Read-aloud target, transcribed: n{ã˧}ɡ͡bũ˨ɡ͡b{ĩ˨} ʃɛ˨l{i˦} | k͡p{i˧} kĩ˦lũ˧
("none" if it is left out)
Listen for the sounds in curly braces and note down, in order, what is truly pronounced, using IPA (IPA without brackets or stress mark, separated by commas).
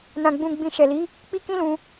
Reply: ã˨, ĩ˨, i˨˦, i˧